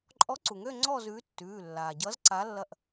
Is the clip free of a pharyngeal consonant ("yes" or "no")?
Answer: yes